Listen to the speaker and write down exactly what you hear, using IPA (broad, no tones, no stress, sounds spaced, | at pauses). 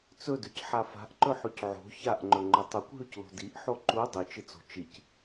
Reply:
t͡s ɵ d ʉ c ħ a f a̤ ʔ ǃ ɵ ħ ʉ c ʕ o̤ ç a ʔ ŋ͡ǃ ɵ ŋ͡ǃ ɵ tˤ u kʷ ɦ ʉ c l o̤ d i ʔ ħ o ǃ u dˤ ɨ t͡ʃ ɨ t͡s o̤ t͡ʃ i c